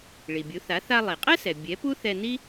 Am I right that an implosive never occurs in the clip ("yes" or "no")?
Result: yes